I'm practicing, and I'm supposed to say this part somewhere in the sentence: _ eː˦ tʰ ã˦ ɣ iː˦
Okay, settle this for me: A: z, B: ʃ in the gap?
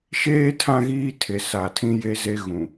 B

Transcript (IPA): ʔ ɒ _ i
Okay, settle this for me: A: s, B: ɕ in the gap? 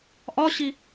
B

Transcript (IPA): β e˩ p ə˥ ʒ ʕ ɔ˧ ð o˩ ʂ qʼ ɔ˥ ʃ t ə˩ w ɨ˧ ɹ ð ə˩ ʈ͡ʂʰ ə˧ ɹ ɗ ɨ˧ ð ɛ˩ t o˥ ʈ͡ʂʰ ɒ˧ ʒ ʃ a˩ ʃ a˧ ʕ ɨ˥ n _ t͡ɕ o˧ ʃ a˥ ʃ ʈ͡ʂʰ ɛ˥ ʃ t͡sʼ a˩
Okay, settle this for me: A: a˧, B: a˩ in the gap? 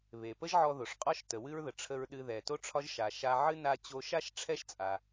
A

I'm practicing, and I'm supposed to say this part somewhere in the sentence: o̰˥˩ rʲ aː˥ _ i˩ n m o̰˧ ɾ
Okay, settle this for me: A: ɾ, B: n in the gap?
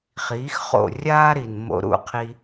A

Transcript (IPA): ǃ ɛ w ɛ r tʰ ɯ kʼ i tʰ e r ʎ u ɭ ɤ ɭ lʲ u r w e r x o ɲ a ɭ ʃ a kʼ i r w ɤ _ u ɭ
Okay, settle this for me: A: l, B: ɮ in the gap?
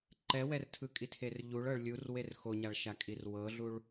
B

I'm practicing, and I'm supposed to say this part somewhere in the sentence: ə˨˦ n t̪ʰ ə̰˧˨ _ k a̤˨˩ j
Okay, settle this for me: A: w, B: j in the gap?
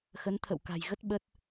A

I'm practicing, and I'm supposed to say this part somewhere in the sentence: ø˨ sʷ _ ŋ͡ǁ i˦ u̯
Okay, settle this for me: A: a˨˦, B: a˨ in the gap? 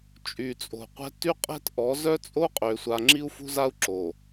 B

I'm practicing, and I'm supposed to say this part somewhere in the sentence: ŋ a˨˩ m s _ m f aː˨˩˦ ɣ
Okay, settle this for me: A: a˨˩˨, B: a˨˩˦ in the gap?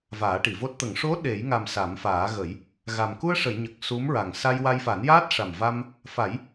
B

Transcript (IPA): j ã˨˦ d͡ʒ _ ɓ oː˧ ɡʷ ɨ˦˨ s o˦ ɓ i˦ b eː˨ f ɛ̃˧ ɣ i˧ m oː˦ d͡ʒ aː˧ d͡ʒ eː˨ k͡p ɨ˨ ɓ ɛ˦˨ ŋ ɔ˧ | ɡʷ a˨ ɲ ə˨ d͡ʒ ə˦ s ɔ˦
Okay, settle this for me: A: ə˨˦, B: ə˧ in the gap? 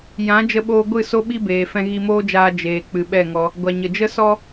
B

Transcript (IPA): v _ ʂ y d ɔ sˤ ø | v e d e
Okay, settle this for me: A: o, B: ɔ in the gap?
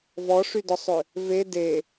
B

